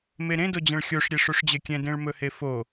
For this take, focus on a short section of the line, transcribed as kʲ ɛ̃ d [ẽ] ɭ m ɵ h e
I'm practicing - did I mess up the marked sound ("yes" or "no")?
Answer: no